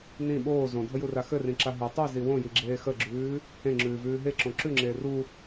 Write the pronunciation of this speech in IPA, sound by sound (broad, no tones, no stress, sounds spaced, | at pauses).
n ĩ ɓ oː z õ dʱ ə j u r a x ɘ r ĩ ǁ a ɦ ɯ tˤ i z i w õ j i ɡ͡ǁ eː x ə ɡ͡ǁ ʉː | h ẽ ŋ͡ǁ ʉː v ʉː ɦ e ǁ õ ǁ ʉ ŋ͡ǁ eː r u